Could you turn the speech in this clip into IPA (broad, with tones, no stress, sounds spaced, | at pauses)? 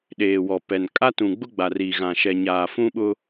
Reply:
ɗ eː˨ w ɔ˨ p ɛ˨ n kʼ a˦ t ũ˨ ɡ͡b ʊ˦ ɡ͡b a˨ r iː˨ ɣ ã˨ ʃ ɛ˨ ɲ aː˨ f ũ˦ ɓ ʊ˦